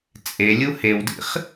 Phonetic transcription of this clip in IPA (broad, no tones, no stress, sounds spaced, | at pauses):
t͡sʼ e lʲ u h e w d ḭ χ